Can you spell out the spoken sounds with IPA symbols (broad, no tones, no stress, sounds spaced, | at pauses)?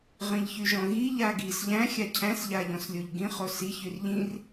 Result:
ʁ ĩ ʎ ç y ʒ ɔ̃ ɣ i ʎ a ɡ i s ʎ æ̃ xʲ a cʰ æ̃ s ʎ a ʎ ɔ̃ s lʲ o ʎ ɡ ĩ χ o s i ç y r ʎ ĩ r